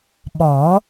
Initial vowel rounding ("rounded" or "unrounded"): rounded